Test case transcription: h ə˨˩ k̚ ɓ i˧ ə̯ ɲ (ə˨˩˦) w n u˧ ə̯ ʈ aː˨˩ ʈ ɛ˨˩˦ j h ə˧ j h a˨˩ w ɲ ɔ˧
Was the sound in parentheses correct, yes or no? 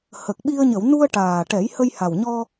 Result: no